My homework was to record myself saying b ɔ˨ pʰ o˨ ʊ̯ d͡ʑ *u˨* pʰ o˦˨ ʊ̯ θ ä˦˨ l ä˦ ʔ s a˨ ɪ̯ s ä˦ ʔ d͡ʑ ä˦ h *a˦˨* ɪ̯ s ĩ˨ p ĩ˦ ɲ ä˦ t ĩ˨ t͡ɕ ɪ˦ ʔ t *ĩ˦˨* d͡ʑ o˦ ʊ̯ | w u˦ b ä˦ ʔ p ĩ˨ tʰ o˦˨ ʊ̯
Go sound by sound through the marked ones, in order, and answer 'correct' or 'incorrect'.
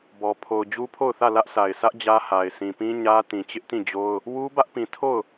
incorrect, incorrect, correct

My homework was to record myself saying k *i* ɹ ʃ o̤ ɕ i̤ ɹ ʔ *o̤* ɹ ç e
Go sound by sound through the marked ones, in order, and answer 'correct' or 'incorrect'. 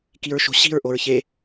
correct, incorrect

